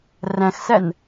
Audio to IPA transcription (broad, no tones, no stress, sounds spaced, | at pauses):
r æ̃ x s æ n